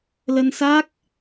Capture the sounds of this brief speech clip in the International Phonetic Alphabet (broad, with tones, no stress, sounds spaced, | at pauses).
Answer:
l ə˧ n s a˦˥ k̚